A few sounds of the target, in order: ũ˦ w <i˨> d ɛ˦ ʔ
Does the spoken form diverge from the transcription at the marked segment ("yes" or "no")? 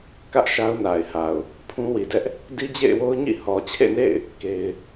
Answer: no